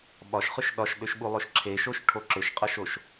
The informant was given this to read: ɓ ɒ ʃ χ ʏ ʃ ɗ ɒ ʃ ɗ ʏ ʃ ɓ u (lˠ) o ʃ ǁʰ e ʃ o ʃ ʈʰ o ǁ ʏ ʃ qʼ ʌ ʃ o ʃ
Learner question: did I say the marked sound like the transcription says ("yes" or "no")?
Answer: yes